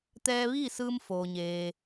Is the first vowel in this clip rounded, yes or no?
no